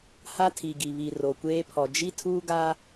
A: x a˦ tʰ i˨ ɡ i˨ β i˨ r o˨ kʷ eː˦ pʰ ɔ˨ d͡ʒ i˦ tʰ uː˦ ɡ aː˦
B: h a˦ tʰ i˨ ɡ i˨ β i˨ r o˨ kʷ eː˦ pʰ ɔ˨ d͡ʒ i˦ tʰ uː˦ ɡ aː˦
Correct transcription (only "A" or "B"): B